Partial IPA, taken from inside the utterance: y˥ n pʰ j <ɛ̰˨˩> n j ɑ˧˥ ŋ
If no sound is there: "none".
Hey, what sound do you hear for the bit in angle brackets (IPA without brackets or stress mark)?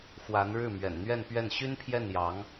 ɛ˥˩